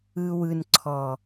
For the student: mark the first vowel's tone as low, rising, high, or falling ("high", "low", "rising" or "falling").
low